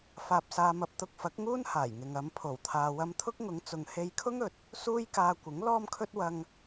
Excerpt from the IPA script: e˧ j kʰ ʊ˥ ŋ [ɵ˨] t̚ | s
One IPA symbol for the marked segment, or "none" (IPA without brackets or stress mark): ɵ˨